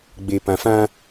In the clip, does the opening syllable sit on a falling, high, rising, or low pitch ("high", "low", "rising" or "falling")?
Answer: low